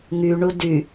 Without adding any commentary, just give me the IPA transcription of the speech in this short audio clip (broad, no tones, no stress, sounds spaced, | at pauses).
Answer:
ŋ y ɳ u d y